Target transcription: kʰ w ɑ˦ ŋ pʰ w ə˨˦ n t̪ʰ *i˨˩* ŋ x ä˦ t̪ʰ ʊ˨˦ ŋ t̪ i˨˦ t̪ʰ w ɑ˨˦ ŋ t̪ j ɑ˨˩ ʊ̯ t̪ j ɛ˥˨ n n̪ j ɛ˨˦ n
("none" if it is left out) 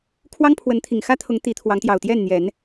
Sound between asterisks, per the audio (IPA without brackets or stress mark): i˨˩